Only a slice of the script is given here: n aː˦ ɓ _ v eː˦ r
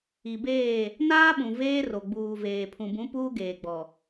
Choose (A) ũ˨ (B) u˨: A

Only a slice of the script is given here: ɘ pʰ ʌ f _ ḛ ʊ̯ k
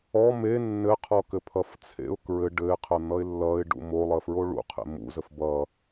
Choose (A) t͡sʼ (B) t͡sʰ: B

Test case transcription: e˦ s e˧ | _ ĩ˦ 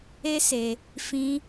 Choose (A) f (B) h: A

